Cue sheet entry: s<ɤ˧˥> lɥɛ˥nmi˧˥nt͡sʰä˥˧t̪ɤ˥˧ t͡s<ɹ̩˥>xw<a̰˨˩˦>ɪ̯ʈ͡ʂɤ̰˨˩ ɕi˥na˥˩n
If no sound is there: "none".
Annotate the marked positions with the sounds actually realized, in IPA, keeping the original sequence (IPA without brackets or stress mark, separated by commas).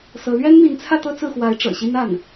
ɤ˧˥, ɹ̩˥˩, a˧˥